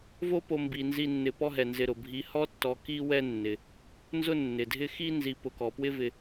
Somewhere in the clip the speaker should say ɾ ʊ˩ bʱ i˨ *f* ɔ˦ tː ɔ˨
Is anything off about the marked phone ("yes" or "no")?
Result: yes